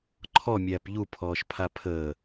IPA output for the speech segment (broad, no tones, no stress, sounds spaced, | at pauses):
ǃʰ ɔ mʲ æː p ʎ u pʰ ɔː ʃ pʰ a pʰ əː